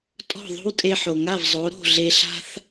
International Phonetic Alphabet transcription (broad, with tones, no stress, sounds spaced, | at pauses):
tʼ ɔ̤˥˩ ðˤ o̤˥ w tʼ e˧ ħ o˩ ŋ a˥˩ v zˤ o˩˥ ɾ o̤˥˩ ɮ e˧ ɬ a̤˥ θ